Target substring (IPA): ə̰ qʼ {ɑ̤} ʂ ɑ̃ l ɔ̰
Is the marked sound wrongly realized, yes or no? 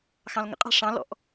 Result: no